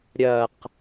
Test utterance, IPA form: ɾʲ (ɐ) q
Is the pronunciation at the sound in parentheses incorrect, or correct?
correct